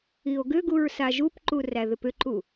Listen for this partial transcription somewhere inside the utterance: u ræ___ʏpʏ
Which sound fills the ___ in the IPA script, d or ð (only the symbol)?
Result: ð